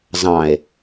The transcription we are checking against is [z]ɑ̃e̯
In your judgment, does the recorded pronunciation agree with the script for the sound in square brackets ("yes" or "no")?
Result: yes